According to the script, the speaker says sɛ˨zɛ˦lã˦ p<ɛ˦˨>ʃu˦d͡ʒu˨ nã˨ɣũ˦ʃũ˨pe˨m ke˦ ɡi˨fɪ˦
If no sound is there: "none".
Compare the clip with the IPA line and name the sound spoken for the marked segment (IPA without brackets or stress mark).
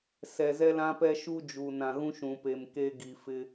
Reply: ɛ˦